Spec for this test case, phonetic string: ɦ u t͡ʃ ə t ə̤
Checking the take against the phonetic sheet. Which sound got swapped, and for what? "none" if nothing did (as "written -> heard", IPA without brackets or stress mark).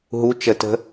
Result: none